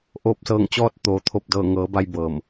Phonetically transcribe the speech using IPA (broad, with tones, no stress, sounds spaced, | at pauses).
ʔ oː˧˩ p̚ s ɤː˧˩ ŋ t͡ɕ ɔː˧ t̚ t̪ oː˩ t̪ʰ o˧˩ p̚ d ɤː˧˩ ŋ ɤː˩˧ b a˧ j b ɤː˧˩ m